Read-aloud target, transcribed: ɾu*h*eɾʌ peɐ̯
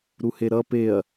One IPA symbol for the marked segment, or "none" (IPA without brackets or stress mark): h